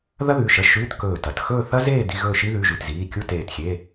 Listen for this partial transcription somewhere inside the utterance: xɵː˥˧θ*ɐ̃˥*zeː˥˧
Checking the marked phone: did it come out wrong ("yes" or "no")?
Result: yes